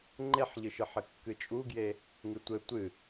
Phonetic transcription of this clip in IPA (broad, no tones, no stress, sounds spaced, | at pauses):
ŋ͡ǃ e ħ ʎ ɨ ʃ ɨ ħ ɘ kː ɨ t͡ʃʼ u ɡ j e | ŋ ɨ tʷ ɘ tʷ ɨ